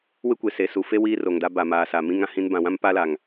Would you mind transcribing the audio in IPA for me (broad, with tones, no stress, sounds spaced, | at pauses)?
w ɪ˦ kʷ e˨ s e˨ s u˨ f e˦ w iː˦ r o˨ ŋ d a˦ b a˨ m aː˨ s a˨ m ĩ˦ ŋ ã˨ h ĩ˦ n b ã˨ w ã˦ m p aː˦ l aː˨ ŋ